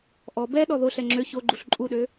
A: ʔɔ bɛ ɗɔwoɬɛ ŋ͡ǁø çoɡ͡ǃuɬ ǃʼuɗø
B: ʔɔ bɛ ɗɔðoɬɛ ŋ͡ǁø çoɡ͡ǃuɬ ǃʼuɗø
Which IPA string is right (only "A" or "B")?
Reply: B